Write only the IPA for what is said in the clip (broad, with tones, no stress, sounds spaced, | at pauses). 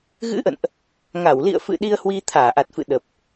ɣ ɨ̰˧˥ ʔ ə̰˧˨ n ʔ | ŋ a˧˩ w l ḭ˧˨ ə̯ f ɨ̰˧˨ ɗ i˧ ə̯ h w i˧ t̪ʰ aː˧˩ ʔ a˨˩ t̚ f ɨ̰˧˨ ɗ ə˨˩ p̚